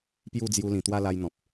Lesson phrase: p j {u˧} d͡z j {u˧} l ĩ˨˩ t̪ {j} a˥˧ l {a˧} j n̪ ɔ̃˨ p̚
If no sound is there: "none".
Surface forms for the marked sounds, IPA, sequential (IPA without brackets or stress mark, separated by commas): u˥˧, u˧, w, a˧